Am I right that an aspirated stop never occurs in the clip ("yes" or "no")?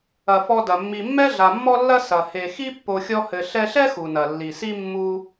yes